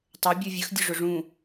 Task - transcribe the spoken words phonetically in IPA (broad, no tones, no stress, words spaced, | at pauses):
tˤɵ bʲuvʲəxdʲʊ ʐʊʐũ